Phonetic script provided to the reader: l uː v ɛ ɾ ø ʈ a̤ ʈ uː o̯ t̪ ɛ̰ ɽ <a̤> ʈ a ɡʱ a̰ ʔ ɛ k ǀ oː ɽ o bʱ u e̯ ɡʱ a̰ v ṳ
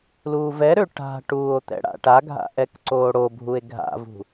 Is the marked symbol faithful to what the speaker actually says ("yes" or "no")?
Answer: no